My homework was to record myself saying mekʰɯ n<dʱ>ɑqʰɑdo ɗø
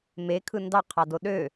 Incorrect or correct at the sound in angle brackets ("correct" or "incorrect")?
incorrect